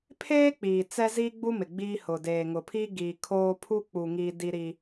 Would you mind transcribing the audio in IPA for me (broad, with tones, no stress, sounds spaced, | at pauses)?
pʰ eː˦ k͡p iː˨ t͡s ɛ˦ z iː˦ ɡ͡b u˦ m ɪ˨ ɡ͡b i˦ h ʊ˨ d eː˨ ŋ ʊ˨ pʰ i˦ ɡ iː˨ kʰ oː˦ pʰ u˦ k͡p u˨ ŋ iː˦ d i˦ ɾ i˦